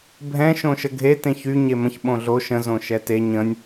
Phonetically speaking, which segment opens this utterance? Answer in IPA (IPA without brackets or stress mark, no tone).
bʱ